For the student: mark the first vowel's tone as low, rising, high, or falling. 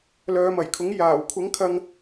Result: low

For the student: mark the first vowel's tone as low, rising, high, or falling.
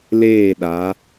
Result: falling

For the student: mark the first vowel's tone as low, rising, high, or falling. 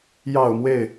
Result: low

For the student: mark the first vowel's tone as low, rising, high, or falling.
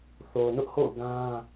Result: low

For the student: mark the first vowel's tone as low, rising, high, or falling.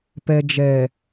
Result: low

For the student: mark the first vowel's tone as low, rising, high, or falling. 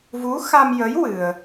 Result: rising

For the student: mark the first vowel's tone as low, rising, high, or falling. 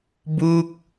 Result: falling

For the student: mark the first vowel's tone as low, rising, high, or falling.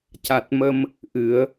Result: low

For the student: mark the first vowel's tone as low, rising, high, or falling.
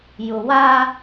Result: low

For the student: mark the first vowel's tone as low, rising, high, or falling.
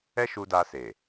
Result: high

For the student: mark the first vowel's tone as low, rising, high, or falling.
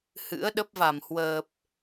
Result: rising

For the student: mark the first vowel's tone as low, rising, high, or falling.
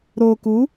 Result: low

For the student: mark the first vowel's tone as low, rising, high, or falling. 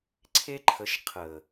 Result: high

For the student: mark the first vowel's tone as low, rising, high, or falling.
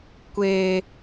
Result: high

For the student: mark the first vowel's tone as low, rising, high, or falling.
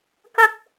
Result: high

